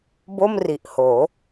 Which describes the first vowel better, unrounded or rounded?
rounded